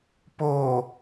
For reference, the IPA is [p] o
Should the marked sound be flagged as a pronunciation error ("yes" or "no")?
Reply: no